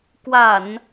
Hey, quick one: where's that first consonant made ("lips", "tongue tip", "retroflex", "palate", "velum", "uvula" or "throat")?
velum